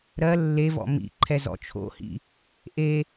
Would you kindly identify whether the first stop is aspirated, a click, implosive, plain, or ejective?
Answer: click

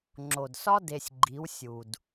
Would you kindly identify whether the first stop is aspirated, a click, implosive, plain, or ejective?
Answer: click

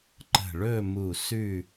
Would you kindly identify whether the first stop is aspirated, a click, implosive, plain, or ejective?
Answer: click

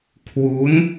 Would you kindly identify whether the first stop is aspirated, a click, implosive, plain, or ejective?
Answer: aspirated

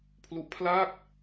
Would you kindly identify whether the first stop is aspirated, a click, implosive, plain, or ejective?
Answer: aspirated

